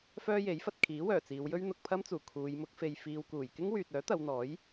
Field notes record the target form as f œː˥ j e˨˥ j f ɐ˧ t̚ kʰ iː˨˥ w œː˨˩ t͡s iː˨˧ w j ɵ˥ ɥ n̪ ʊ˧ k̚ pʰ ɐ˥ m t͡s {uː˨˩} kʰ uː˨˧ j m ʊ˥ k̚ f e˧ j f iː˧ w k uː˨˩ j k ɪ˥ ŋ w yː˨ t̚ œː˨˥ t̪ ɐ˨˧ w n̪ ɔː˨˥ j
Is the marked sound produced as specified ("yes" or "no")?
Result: yes